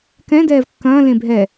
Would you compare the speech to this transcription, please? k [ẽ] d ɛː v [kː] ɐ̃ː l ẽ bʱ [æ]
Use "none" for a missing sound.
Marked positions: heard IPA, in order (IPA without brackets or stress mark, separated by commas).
ɛ̃, kː, ɛ